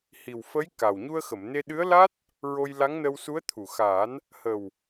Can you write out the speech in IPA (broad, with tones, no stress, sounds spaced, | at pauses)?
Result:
h i˨˩ w f ə˧˥ j k a˨˩ w ɲ u˧ ə̯ x ə˨˩˨ m n e˧ ɗ ɨ˧˥ ə̯ l a˦˥ t̚ | ɹ o˧ j l a˧˥ ŋ n ə˧ w s u˧˥ ə̯ t̪ʰ u˨˩ x aː˨˩˦ n | h ə˨˩ w